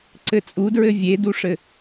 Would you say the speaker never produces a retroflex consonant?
no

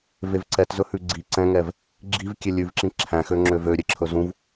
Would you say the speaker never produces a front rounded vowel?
no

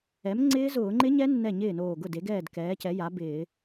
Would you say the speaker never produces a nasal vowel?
yes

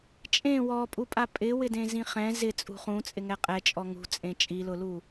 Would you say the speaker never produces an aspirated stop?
yes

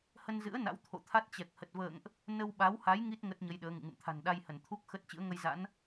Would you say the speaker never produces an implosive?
no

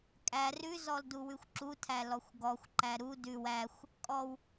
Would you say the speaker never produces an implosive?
yes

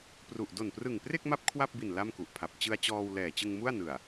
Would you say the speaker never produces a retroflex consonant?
yes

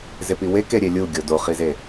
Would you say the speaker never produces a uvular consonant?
no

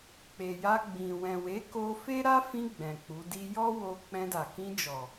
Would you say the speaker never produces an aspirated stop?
yes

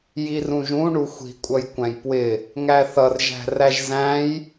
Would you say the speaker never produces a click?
yes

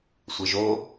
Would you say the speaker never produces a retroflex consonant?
yes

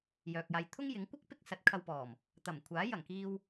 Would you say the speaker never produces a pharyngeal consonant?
yes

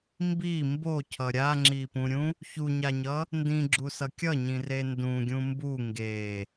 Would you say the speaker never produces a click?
no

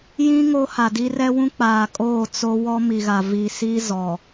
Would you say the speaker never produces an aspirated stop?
yes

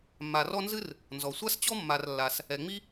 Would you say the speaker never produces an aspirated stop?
yes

